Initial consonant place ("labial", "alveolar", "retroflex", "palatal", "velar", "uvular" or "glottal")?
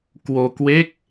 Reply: velar